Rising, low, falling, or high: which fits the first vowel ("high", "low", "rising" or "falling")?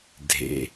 low